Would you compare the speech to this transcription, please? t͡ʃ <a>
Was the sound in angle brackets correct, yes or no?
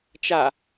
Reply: yes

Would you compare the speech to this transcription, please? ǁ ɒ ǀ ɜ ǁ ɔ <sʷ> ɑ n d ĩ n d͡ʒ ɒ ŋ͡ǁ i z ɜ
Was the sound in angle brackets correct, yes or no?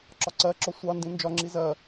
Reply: yes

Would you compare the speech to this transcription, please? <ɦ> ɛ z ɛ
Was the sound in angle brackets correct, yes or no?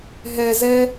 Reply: yes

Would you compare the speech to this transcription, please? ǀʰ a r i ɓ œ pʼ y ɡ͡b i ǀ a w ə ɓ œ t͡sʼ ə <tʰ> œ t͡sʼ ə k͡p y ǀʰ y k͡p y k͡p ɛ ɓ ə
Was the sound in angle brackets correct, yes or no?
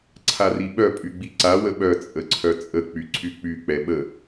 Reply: no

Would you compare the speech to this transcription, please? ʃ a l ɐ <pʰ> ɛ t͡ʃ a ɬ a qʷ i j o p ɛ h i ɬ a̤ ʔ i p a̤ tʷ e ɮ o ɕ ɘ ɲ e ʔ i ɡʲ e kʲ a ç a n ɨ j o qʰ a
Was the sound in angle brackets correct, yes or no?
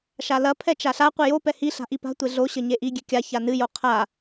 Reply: yes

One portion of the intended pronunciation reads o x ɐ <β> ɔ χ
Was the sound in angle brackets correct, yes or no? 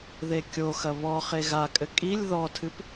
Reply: yes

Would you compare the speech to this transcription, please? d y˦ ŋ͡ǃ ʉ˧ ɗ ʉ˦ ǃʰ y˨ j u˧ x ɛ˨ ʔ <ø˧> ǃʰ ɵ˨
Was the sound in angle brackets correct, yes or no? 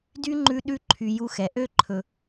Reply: yes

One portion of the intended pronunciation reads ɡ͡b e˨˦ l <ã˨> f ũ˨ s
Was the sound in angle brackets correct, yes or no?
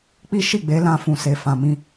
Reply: no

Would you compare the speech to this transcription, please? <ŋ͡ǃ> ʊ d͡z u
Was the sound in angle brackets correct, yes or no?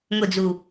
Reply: no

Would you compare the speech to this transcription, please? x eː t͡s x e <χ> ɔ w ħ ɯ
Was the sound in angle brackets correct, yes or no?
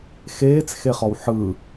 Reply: yes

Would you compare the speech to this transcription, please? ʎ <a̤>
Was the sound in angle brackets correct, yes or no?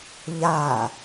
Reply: no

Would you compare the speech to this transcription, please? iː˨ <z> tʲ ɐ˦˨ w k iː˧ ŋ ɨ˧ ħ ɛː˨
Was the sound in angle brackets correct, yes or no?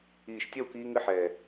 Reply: no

